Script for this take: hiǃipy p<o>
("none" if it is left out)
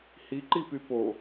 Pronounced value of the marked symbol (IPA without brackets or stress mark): o